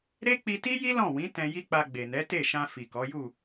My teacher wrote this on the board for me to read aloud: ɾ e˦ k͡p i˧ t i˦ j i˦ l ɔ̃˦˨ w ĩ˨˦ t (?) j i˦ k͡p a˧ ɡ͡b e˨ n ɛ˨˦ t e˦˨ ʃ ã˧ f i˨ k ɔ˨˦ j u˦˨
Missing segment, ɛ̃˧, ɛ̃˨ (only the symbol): ɛ̃˧